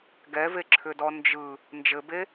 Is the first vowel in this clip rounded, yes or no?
no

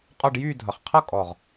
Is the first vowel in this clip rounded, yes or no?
yes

